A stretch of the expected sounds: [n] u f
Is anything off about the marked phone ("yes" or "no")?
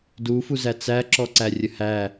yes